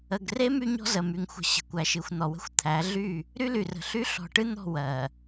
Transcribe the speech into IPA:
ə˨ ɡ r e˦ m y˦ ɲ ɔ̤˦ z ə˨ m y˨ ŋ xʷ ə̤˨ ɕ ə̤˨ kʷ æ˨ ʃ ɨ˨ xʷ n̪ ɔ˨ w ə̤˦ xʷ t̪ʰ æ˨˦ ɮ y˦˨ | ɾ y˦ l y˨ r ə̤˨ ɬ y˦ ɬ ɔ̤˨ ʈ ɨ˦ n̪ ɔ̤˦˨ w ɜ˨

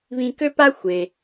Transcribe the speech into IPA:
β ĩ˧ k ø˥ p a˥ xʷ e˩

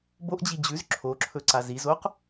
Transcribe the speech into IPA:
b o ʔ d͡ʑ i d͡ʑ ʉ z ǁʰ o ǁʰ ɵ ǀ a z i z o q

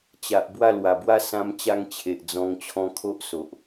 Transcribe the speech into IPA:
t͡ɕ a˨ ʔ b w a˥˧ l w a˨˩ b w a˦ s ã˧ m t͡ɕ a˧ ŋ t͡ɕʰ e˨ ʔ d͡z ɔ̃˧ ŋ t͡ɕʰ ɔ̃˧ kʰ o˦ ʔ s o˨ ʔ

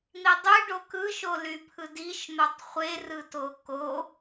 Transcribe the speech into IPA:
n̪ i dˤ y ɖ o k ɯ ʃ o l y pʰ ɯ d i ʃ n̪ o tˤ χʷ e r ɯ t o k o

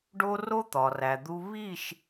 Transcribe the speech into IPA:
ɖ o˦ r o˦ t̪ ɒ˨ r æ˨ d̪ u˦ β i˦˨ ʃ

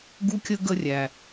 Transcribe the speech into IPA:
ɡ u˥ kʲ ə˥ ɡ ə˥ rʲ æ˨

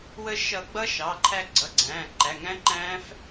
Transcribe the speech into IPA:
w əː˧ ʃ ʌ˨˩˦ ɡ͡b ʌ˦˥ ʃ ɑ˩˧˩ ǃʰ æ˧ ɡ͡ǀ ʌ˩˧˩ ɡ͡ǀ æ̃ː˩˧˩ ǃ æ˩˧˩ ŋ æ̃˦˥ ǃ æ̃ː˦˥ f

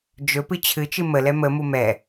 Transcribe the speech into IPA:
d͡ʒ ɵ p ɨ t͡ɕʰ ɨ t͡ʃ ɨ m ə l ɛ m ə m u m ɛ

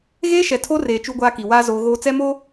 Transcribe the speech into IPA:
ɣ eː˦ ʃ ɛ˨ tʰ o˦ r eː˨ t͡ʃ u˦ ɡʷ aː˦ k i˨ w aː˦ z oː˦ ɣ oː˦ t͡s ɛ˦ m o˦

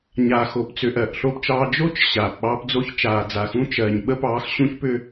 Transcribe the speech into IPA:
ɲ aː˨ x o˨ p t͡s ʏ˨ ʔ ɜ˨ ʔ ɬ o˦ p t͡ʃ ɑː˦ d͡ʒ o˦ t͡ʃ ɕ aː˨ p ɓ ɑː˦ p d͡z o˦ ç t͡ʃ aː˨ d͡z a˨ x ũ˦ t͡ʃ ɜ˨ ɲ ɓ ə˦ p ɑː˨˦ x ɕ ũ˦ ç p ʏ˦

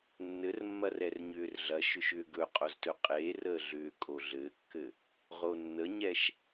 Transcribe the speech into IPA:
nː ɘ r mː ɐ r ɛ r ɲ ʏː r ɮ ɐ ʃ ʏ ʃ ʏː ɡ ɵ qʼ o z t ɵ qʼ eː r əː ɮ ʏː kʼ o ɮ ɘː kː ɘ | ʁ o nː ə ɲ ɛ ʃ

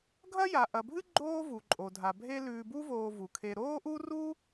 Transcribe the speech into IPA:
ɡʱ ɐ˦ j a˩ ʔ ɐ˩ bʱ ɨ˦ ɡ͡ǃ oː˦ v u˩ ǃʼ o˩ dʱ a˩ bʱ e˦ l ʉː˨ b u˦ v oː˨ v u˩ kʰ e˨ ɾ oː˥ ʔ u˥ r u˥

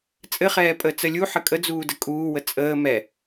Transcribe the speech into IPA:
t͡sʼ ɘ χ ɛː pʼ əː t͡s ə lʲ u ħ ə kʼ ə d͡z uː d ə kʼ uː w ə t͡sʼ əː m ɛ

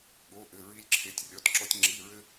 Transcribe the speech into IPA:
ɠ o˧˥˧ ʔ ɘ˧˥˧ ɹ i˥ lʲ ǁʰ e˧˥˧ tʲ rʲ ɔ˧˥˧ t ǁ ɔ˥ tʲ ŋ͡ǁ i˧˥˧ ɹ ɘ˥

